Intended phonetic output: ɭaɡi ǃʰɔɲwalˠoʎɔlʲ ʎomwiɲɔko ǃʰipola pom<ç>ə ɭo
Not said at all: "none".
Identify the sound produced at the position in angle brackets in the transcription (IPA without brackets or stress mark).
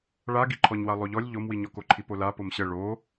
ɕ